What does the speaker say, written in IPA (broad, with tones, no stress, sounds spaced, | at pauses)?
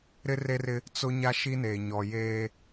ɾ ɪ˦ r e˦ r ɪ˦ | t͡s ʊ˦ ɲ a˦ ʃ i˦ n eː˨ ɲ ɔ˨ j eː˦